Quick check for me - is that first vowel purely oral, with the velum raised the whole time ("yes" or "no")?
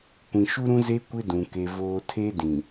no